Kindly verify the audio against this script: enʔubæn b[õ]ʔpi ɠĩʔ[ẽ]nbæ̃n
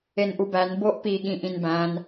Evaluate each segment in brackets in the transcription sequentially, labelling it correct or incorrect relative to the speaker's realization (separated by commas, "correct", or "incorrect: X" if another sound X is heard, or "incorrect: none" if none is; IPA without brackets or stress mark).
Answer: incorrect: o, incorrect: ĩ